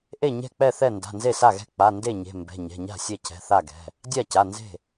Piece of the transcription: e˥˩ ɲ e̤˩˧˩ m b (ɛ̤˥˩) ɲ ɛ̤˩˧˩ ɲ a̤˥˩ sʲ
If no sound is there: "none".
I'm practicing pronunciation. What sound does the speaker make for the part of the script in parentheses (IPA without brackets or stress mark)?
ɛ̤˩˧˩